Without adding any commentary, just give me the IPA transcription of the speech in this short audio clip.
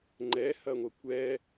ŋ͡ǃ ɛ h ɐ ŋʷ ɐ kʷ ɛ

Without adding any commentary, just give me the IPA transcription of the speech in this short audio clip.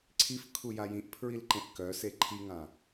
ǀʰ i f kʰ u j a j ĩ ʔ pʰ ɹ i l ǃ ẽ ʔ k œ s e ǃʰ i ŋ ã

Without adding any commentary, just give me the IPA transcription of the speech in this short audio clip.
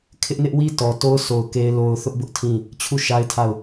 kʰ ɪ˦ ʔ n ɪ˦ ʔ w i˦ t ɔ˨ t o˦ ʊ̯ sʰ o˨ ʊ̯ k e˦ ɪ̯ l o˦ ʊ̯ θ ʊ˦ ʔ b ʊ˦ ʔ tʰ ĩ˦˨ | t͡ɕʰ u˦˨ ʃ a˦ ɪ̯ tʰ a˦˨ ʊ̯

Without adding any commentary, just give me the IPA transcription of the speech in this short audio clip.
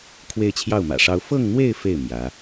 kʰ w e˥˧ ɪ̯ t͡ɕʰ j ɑ˥˩ ʊ̯ m ä̰˨˩ ʂ ɑ˥ ʊ̯ f ɤ˥˧ ŋ n̪ w e˥˧ ɪ̯ f e˥˩ ɪ̯ m j ä˧˥

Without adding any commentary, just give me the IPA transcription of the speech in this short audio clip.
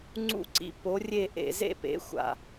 ŋ͡ǀ ṵ˥˧ ǀ ḭ˧˥ p o˧˥ rʲ e˥˧ ʔ ḛ˧˩˧ z ḛ˥˧ p ḛ˩˥ xʷ a̰˨˩

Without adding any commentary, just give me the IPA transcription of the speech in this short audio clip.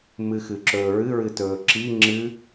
m ɨ x ɨ ǁ ɵː ɹ ɨ ɹ ɨ t ɵː ǁ i ŋ͡ǁ ɨ

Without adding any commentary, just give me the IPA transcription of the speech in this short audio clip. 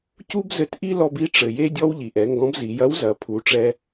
c u˥ b z ɘ˧ t ʔ i˥ l ɔ˧ b i˥ ʈ͡ʂ ɘ˩ j e˥ dʲ ɔ˥ w ʎ i˩ ʔ ɛ˩˧ ŋ ɡ ɔ̃˧˥ b z i˩˧ j ɐ˧˥ w z ɐ˩˧ pʰ u˩˧ ʈ͡ʂ ɛ˧

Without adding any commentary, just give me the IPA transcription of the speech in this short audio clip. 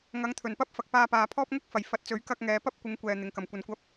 ŋ ɐ˨˧ ŋ t̪ʰ ɵ˨˩ n p ɐ˥ p̚ f ɐ˨ k̚ p aː˧ p aː˨ pʰ ɔː˥ p̚ ŋ ʊ˥ k̚ f ɐ˨˩ j f ɐ˨˥ t̚ t͡s ɵ˨˥ ɥ k ɐ˧ k̚ ŋ ɛː˨˧ p ɐ˥ p̚ kʷ ɪ˨˧ ŋ kʷ ɛː˨ n̪ ɪ˨˧ ŋ k ɐ˨ m kʷ ɐ˧ n kʷ ɐ˥ p̚

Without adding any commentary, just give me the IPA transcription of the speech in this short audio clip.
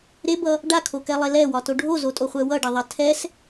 ɾ e b ʌ | ɖ a kʰ o k ɛ lˠ e l ɛ w ɒ t o ɖʱ o z o tʼ o χʷ ɛ w ʌ ɖ ɐ ðˤ ɐ tʰ ɛ s

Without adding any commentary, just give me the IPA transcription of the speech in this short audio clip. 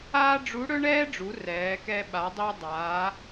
aː˥ ɖ͡ʐ u˧˥ ɽ ɵ˥ ɳ ɛː˥ ɖ͡ʐ u˩˧ r ɛː˩˧ k ɛ˧ ɓ a˩˧ dˤ i˧ dˤ aː˩˧

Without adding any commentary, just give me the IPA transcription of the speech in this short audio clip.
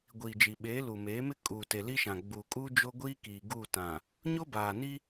ɡʷ iː˨ d͡ʒ i˨ ɓ eː˨˦ l u˨ m eː˨˦ m ɪ˦ kʼ uː˨ t e˨ l i˦ ʃ ã˨ ɡ͡b uː˨ kʼ uː˦ d͡ʒ o˦ ɡʷ iː˦ k iː˨ ɡ u˦˨ t ã˨ | ɲ o˦ b aː˨ n i˦

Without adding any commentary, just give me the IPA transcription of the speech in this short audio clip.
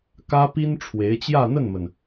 k ä˥ p i˥ n ʈ͡ʂʰ w e˧˥ ɪ̯ t͡ɕ j ä˥˧ n̪ ə˥˩ n m ə˩ n

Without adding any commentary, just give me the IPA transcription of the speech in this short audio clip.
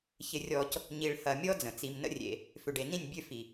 ç ɪ˨ rʲ ɔ˨ c | ɲ i˨ ɭ h ɐ˨ mʲ ɔ˦ d͡z ə̃˨ t͡s i˦ m n ə̰˦ rʲ ḛ˨ | f ʏ˨ ɖ e˨ n ĩ˦˨ nʲ bʲ ø˦ f i˨

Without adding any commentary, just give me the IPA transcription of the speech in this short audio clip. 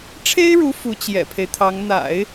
ʈ͡ʂʰ e˥ ɪ̯ ɻ u˧˥ f u˧˥ t͡ɕ j ɛ̰˨˩ pʰ e˦ ɪ̯ t̪ʰ ɑ˧˥ ŋ n̪ a̰˨˩˦ ɪ̯

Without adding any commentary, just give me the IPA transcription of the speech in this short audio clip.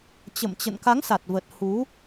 t͡ɕ ə̰˧˨ m t͡ɕ ə̰˧˨ n k a˨˦ ŋ s a˨˩ t̚ v ə˨˩ t̚ h u˨˦

